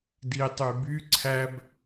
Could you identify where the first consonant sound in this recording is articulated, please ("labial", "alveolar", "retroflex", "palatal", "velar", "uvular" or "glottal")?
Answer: alveolar